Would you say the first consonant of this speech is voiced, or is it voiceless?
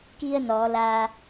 voiceless